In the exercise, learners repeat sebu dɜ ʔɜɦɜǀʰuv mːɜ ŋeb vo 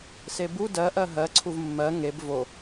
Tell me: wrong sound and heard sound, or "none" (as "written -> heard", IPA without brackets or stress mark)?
none